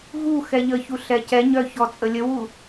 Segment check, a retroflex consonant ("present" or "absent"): absent